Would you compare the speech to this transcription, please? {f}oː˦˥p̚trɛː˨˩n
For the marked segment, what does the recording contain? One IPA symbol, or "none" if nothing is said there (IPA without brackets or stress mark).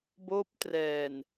b